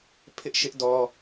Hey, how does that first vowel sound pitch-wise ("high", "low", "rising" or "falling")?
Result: high